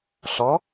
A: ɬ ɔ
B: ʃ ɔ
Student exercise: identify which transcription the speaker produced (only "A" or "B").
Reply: A